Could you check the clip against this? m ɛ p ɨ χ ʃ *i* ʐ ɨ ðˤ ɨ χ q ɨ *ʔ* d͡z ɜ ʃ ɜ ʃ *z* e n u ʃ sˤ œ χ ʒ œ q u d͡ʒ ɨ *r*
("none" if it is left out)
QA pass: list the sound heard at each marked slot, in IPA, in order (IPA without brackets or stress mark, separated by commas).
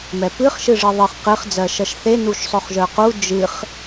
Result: ɨ, χ, θ, χ